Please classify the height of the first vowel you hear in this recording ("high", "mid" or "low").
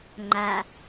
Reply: low